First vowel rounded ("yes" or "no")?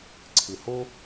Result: no